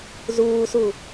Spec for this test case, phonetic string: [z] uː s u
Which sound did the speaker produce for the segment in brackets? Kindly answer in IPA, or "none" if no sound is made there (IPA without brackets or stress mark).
z